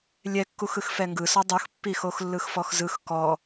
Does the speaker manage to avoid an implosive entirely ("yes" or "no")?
yes